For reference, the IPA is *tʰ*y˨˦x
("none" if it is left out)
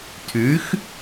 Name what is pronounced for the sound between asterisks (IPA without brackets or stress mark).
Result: tʰ